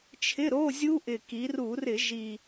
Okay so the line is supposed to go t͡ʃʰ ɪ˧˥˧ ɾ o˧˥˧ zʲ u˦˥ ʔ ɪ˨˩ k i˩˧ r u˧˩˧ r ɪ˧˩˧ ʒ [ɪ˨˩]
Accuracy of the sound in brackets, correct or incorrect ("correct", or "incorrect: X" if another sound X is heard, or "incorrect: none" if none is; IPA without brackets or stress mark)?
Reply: incorrect: i˨˩